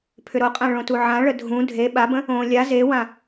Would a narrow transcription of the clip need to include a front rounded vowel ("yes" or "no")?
yes